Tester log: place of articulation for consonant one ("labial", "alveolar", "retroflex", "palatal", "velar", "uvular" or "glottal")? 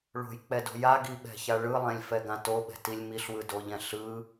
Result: retroflex